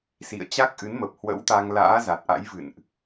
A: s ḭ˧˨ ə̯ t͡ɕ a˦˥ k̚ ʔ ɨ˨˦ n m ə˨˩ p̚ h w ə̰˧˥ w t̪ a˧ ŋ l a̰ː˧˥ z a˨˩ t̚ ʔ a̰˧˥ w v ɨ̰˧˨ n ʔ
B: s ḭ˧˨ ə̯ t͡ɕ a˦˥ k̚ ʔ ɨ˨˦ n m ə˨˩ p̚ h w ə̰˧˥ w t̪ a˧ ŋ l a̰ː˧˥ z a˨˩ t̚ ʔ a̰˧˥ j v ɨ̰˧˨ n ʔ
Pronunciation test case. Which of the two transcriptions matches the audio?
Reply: B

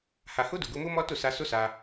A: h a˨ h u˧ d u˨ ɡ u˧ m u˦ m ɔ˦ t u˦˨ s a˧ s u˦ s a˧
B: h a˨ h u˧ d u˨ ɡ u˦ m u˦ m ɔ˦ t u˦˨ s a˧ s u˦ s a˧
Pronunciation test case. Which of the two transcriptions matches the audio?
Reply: A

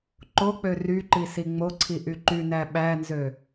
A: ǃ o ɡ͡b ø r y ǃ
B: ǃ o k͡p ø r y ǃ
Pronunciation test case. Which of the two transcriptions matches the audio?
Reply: B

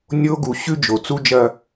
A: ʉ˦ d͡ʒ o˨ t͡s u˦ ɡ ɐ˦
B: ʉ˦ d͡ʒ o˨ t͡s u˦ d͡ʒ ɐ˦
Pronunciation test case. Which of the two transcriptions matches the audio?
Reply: B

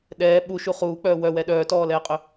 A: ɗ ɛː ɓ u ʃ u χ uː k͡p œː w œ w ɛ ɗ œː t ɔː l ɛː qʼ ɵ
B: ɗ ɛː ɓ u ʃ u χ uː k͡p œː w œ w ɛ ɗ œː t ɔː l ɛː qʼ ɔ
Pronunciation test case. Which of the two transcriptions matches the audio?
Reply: A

